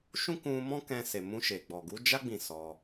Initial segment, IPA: ʃ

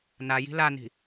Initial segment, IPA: n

